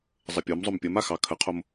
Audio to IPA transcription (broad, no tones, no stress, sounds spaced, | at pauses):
zˤ ə pʲ o m zˤ o m pʲ ə m a x ɑ kʰ ə qʰ o m